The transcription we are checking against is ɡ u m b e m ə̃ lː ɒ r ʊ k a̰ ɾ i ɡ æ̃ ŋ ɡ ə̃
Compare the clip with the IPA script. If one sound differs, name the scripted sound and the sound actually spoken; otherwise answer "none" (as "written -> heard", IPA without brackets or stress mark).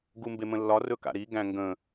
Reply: ʊ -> ɵ